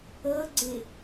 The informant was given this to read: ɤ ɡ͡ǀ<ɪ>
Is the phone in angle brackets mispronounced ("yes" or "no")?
no